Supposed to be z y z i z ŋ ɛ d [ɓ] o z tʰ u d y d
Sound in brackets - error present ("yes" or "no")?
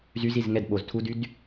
no